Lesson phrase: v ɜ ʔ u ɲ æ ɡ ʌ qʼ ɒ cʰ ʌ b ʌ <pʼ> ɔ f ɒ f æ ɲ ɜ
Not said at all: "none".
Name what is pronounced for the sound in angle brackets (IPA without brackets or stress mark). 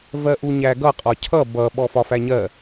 ɓ